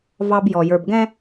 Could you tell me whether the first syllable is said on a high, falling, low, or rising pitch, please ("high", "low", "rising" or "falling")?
high